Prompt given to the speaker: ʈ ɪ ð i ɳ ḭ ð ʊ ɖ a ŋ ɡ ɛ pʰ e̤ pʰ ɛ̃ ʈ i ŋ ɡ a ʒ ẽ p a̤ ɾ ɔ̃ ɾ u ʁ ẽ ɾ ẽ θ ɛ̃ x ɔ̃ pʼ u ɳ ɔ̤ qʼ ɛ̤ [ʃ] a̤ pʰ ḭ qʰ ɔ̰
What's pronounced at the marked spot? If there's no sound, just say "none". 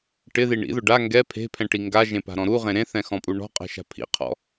ʃ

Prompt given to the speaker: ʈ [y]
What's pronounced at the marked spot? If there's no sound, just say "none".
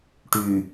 y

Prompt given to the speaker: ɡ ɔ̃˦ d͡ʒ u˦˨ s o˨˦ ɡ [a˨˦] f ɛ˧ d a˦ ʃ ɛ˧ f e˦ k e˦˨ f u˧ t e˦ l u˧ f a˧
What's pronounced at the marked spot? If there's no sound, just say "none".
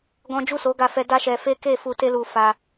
a˧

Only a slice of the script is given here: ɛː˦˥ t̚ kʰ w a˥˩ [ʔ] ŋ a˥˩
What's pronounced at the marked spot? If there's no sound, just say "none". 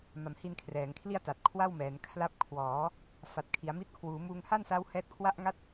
ʔ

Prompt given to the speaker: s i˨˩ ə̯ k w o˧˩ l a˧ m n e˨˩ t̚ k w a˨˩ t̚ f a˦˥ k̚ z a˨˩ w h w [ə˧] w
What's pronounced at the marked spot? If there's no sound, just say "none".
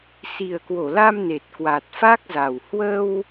ə˧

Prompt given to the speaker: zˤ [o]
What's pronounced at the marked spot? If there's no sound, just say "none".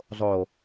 o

